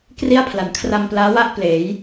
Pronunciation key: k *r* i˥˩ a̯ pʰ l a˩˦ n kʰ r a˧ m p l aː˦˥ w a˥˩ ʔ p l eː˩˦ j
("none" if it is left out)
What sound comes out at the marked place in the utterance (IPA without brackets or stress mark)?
r